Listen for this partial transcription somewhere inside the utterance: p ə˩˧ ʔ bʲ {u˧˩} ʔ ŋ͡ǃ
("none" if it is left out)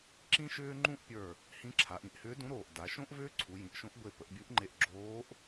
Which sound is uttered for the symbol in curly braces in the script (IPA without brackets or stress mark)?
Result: u˧˥